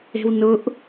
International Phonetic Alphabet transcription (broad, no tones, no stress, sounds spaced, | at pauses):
e̤ w n ʊ ʔ